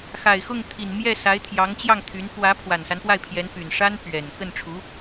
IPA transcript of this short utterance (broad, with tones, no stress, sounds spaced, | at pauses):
x a˨˩ ɪ̯ x ʊ˥˩ ŋ t̪ʰ i˨˩ n m j ɛ˥˩ s a˧˥ ɪ̯ t̪ʰ j ɑ˧˥ ŋ t͡ɕ j ɑ˥˩ ŋ t̪ʰ y˧˥ n p w ä˧˥ pʰ w a˨˩ n s a˦ n p w a˥˩ ɪ̯ pʰ j ɛ˧˥ n p y˨˩ n ʂ a˥ n p ɥ ɛ˨˩ n k ə˥˩ n ʈ͡ʂʰ u˧˥